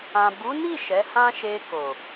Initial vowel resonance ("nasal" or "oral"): nasal